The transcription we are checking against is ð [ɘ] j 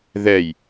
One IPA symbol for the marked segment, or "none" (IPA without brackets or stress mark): ɛ